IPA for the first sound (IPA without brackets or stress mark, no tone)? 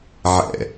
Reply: ʕ